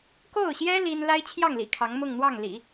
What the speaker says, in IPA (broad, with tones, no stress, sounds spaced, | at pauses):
k o˥˩ ʊ̯ ɕ j ɛ˥ l i˥ n l a˥ ɪ̯ t͡ɕʰ j ɑ˥˩ ŋ l ḭ˨˩ kʰ ɑ˧˥ ŋ m ʊ˥˧ ŋ n̪ w ɑ˥˩ ŋ l ḭ˨˩˦